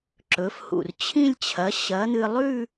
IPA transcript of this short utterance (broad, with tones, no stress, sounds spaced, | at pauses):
ǁ ɵ˩˥ f h ṵ˧˩ r t͡ɕʰ ĩ˥˧ lʲ t͡ɕʰ ɐ˩˥ ɕ ɐː˩˥ n̪ ɨ˧ lˠ ʉ˥˧